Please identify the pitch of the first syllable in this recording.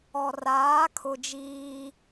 low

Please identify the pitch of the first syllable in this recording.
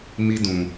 high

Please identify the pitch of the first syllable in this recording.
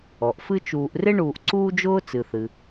low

